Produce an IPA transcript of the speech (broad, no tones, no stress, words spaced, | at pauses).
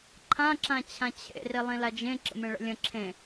ǃʰã ǁãt͡ɕʰãt͡ɕʰḛ rilˠĩlad͡ʒẽ ǁə̰mẽɭə̰lʲə̃ ǁʰẽ